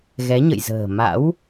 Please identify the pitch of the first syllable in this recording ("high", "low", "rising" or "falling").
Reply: rising